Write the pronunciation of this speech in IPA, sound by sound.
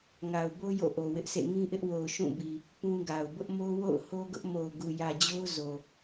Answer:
ŋa˨ʊ̯bo˦ jo̰˦˨ʔo˨wɪ˦ʔsʰḛ˦˨ ŋĩ˦ʔɪ˦ʔwo˨ʊ̯ ʃũ˦˨bi˨ | pũ˦ɡa˨ʊ̯ bʊ˦ʔmo˦wo̰˦˨ʊ̯ ho˦ɡʊ˦ʔ mo˨ʊ̯ ɡu˨jä˨d͡ʑo˦ʊ̯ zo˨

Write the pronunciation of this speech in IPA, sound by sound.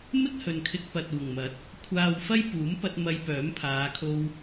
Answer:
mɪ˥k̚hɵ˨nkʰɪ˧k̚ pɐ˨t̚uː˨˩ŋmɐ˨˥t̚ | kʷʰaː˨w fɐ˥jpuː˨˥mpɐ˧t̚ mɐ˧jpœː˨˥mpʰaː˨˧ kʰo˧w

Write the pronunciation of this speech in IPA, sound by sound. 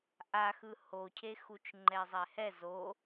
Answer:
ʔaxɯ hocʰexut͡ʃ ŋ͡ǃɛzˤɛhɛ zo

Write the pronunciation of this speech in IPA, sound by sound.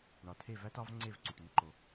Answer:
ɳɒ˨tʰe˦˨ væ˦tɒ˦v ŋ͡ǀe˦˨v ǀu˨ʈni˦ǃo˧

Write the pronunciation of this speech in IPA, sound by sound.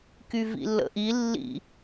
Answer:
kyvḭlːə̰ʔi lːḭ

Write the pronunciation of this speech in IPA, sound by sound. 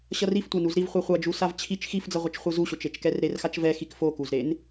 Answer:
ɕʌriftʷanuz ɾivχʷe χʷad͡ʒusav t͡ɕʰit͡ʃ xifd͡zʌʁʷʌt͡ʃ χʷɯzuɕot͡ʃ et͡ʃkɛrɾerxat͡ʃ vɛxik fokuzɾen

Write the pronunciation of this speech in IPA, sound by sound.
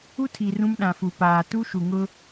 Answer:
u˦tʰi˨ rũ˦mɗã˨fu˨ paː˨ tu˦ʃu˨ŋʊ˦

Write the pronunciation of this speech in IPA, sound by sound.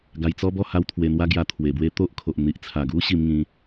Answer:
ɡa˧jt͡sɔ˦bɔ˥˧ ha˦wt̪ʰwe˧n̪wa˦ɡja˧ t̪ʰwe˨˩bwe˦t̪o˦ʔkʰo˨ʔ n̪i˨ʔt͡sʰa˨˩ɡu˦ ɕi˧m ŋĩ˧

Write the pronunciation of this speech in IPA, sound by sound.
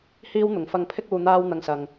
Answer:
hiː˥wn̪ʊ˨˥ŋ fɐ˧ŋpʰɪ˥k̚ uː˧n̪aː˥w n̪ɐ˥ŋsɐ˧ŋ

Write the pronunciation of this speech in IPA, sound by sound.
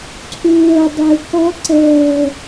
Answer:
ǀʰuwɤ dˤeu̯kɔ ǀɤ

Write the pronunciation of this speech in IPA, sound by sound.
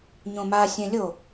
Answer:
ɲõma sʲɛ̃lʲo

